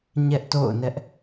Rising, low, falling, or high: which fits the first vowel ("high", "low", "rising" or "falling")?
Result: high